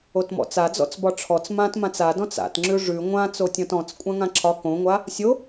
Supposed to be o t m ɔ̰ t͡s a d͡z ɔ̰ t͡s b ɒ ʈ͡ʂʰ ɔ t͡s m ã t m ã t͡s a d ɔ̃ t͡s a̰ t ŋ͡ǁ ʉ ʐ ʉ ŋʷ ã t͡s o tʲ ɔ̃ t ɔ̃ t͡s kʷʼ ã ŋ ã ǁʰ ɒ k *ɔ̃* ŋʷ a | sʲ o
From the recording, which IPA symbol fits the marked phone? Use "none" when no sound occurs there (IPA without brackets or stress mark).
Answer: õ